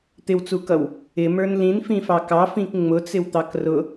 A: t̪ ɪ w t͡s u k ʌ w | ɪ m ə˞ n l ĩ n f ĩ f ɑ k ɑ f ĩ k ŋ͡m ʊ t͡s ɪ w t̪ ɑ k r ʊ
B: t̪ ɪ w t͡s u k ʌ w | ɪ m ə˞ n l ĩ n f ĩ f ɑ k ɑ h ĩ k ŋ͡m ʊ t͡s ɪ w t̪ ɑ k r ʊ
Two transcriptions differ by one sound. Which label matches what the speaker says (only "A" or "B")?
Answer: A